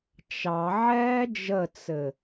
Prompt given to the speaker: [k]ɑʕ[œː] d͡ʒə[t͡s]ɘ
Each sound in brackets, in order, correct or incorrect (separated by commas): incorrect, incorrect, correct